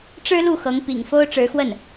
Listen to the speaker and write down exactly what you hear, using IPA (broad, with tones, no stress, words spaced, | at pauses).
ʈ͡ʂɻ̩˥lu˥˩xɤ˧˥ŋ pḭ˨˩ŋfo˥ʊ̯ ʈ͡ʂɻ̩˧˥xwə˥˩n